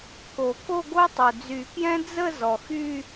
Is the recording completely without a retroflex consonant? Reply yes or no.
yes